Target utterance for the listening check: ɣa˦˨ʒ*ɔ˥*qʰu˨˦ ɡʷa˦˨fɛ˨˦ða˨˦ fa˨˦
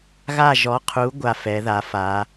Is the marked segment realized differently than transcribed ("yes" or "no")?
yes